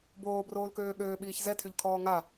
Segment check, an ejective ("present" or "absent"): absent